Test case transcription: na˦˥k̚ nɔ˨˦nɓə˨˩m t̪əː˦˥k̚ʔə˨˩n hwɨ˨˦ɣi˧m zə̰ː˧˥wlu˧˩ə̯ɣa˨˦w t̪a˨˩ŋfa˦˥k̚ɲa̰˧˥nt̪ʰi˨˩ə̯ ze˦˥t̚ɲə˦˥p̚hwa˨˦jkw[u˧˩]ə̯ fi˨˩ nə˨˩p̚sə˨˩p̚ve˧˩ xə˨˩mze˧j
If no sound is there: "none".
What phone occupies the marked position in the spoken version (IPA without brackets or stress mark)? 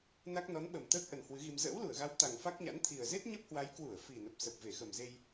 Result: u˧˩